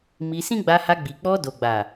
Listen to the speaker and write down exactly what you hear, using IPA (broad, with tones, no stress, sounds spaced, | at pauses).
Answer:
m i˧ s ĩ˦ ɡ͡b a˧ h a˧ ɡ͡b i˨ k͡p ɔ˧ d o˨ ɡ͡b a˨